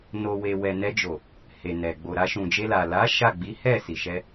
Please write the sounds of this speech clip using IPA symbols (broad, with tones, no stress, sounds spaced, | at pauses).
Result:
n o˨ w e˨ w ɛ˨ n ɛ˧ d͡ʒ o˨ | h e˨ n ɛ˨ ɡ͡b o˨ ɾ a˧ ʃ ũ˨ d͡ʒ e˧ l a˨ l a˨˦ ʃ a˦˨ ɡ͡b i˨˦ h ɛ˦˨ s i˨ ʃ ɛ˧